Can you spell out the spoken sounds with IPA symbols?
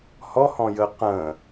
h ɔ h ɔ̃ j əː q ə̃ː

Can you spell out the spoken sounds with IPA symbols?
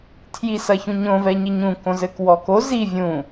tʰ j i s ɐ ç ũ ɲ õ v ɛ ɲ i ɲ ũ k õ z ɘ k w ɔ k o z i vʲ ũ

